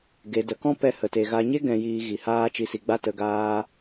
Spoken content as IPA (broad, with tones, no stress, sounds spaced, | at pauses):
ɡ e˨ d ə˨ k ɔ̃˦ p ɛ˧ h ə˨ t e˨ ɣ a˧ ɲ e˦ ɡ ɛ̃˧ j iː˧ ɣ i˨ h aː˧ t͡ʃ i˨ s i˨ ɡ͡b a˧ t ə˧ ɡ aː˦